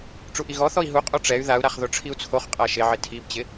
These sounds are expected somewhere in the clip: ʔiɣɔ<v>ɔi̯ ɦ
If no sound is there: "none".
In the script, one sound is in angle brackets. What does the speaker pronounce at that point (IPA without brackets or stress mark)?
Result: θ